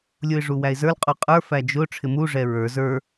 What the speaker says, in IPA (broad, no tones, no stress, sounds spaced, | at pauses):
lʲ u ɪ̯ ʐ u w æ ɪ̯ z ə˞ l qʼ u qʼ ə˞ f æ d͡ʒ ʊ ʈ͡ʂʰ ɪ m u ʐ ɛ ɹ ə˞ z ə˞